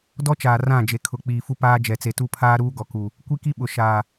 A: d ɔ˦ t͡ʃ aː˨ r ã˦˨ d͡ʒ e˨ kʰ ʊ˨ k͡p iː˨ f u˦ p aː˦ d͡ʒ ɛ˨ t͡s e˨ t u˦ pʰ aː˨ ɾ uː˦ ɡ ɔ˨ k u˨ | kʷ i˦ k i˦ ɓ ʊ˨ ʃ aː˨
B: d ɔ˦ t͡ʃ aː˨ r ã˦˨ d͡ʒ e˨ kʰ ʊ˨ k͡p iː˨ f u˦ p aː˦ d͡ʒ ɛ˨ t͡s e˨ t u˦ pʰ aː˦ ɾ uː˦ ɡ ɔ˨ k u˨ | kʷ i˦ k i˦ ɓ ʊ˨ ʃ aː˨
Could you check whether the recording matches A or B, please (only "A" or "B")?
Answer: B